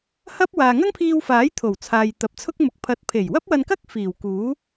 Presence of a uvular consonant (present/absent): absent